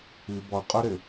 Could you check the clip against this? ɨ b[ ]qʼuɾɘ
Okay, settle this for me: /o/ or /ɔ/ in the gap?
ɔ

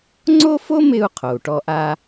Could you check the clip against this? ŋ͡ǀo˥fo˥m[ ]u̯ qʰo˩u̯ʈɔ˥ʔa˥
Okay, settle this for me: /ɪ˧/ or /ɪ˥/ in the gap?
ɪ˧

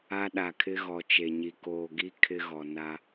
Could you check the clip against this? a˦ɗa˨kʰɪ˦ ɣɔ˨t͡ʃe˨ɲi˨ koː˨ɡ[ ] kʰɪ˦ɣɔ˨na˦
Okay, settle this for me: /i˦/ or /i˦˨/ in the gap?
i˦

